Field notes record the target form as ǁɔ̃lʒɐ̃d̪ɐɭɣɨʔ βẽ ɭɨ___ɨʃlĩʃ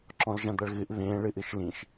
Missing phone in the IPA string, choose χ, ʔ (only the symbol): ʔ